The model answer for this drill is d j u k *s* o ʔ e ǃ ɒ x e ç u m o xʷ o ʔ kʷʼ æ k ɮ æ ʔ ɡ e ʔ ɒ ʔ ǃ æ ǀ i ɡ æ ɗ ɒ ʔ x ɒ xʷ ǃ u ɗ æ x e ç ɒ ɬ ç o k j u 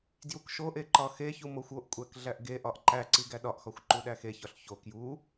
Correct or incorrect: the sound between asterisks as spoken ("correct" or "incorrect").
incorrect